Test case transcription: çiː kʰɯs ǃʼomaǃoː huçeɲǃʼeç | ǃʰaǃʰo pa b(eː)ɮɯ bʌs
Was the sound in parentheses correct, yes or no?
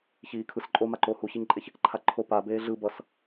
yes